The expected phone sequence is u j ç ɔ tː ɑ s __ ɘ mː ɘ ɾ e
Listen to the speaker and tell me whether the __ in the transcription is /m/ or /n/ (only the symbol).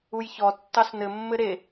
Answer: n